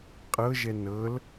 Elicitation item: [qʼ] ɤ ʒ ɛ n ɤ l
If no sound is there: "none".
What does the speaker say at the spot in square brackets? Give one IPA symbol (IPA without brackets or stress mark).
qʼ